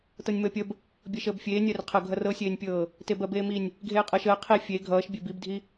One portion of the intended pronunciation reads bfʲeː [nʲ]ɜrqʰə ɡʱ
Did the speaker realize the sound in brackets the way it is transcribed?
yes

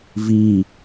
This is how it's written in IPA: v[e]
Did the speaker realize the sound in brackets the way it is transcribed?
no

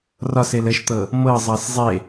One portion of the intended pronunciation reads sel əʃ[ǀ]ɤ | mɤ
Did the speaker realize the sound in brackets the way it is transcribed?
no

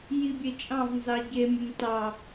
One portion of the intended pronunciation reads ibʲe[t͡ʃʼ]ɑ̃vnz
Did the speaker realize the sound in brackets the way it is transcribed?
yes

